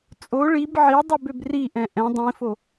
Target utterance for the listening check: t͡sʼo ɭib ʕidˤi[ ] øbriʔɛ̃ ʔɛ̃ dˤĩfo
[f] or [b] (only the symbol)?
b